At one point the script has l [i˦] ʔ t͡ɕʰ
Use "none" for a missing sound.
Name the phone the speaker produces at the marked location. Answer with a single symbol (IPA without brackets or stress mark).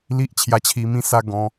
i˦